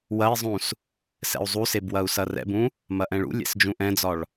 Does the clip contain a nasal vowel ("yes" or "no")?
yes